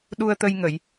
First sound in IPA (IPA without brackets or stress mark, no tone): ɗ